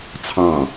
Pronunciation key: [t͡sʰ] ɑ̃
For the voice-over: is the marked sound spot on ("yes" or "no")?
yes